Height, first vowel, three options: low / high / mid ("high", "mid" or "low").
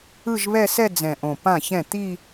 high